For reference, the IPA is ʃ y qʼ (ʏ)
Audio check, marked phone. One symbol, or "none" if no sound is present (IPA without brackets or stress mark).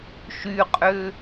ʏ